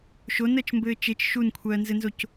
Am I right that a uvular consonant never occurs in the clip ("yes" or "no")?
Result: yes